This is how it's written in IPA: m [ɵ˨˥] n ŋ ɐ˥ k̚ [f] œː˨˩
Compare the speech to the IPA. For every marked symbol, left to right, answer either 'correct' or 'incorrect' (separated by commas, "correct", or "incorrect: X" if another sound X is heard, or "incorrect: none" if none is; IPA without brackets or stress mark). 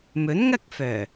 correct, correct